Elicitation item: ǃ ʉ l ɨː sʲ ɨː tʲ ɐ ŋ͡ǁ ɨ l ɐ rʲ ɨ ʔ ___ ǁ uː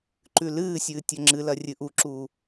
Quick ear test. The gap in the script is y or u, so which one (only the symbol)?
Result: u